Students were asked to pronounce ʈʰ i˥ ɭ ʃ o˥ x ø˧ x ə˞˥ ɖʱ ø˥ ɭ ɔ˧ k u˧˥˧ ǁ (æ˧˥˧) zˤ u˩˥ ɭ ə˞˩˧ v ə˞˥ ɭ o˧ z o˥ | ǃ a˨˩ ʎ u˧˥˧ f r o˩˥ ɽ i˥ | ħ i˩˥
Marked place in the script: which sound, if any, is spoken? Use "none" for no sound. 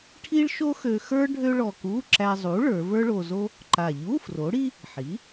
æ˧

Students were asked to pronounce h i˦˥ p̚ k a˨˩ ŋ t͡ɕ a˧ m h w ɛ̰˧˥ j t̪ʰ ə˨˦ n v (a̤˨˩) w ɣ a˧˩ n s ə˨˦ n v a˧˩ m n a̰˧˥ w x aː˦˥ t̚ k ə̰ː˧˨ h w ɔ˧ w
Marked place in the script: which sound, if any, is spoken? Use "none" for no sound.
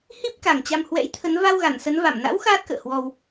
a˧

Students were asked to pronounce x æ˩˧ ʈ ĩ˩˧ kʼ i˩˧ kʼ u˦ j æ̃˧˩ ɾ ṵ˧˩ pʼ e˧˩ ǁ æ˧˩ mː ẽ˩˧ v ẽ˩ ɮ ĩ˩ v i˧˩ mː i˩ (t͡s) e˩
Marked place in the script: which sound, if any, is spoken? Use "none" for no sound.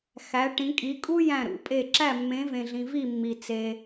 t͡s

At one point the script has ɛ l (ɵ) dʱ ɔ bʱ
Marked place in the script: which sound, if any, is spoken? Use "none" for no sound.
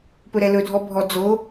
ɵ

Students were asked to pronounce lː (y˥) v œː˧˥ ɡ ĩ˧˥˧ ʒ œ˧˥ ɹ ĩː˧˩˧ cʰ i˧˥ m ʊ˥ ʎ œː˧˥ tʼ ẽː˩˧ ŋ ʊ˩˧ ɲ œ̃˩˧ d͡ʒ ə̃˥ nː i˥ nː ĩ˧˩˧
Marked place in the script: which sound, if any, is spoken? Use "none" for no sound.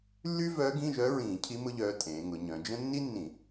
y˥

